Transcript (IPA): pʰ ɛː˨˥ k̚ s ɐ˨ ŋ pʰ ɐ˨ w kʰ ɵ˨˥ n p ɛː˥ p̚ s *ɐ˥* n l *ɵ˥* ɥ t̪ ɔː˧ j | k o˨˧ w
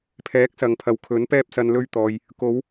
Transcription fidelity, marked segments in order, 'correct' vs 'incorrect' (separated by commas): incorrect, correct